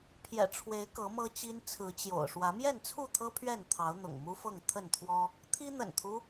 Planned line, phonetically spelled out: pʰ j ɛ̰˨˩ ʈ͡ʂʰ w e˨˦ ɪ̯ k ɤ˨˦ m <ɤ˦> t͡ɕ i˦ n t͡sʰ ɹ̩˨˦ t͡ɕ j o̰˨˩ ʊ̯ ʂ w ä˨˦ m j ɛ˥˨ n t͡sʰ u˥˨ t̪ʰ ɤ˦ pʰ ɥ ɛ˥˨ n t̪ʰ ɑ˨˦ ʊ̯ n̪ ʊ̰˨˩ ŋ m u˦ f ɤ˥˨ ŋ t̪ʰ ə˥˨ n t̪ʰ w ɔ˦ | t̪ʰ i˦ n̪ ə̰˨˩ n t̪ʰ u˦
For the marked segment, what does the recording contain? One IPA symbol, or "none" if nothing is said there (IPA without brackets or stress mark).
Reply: ɤ˦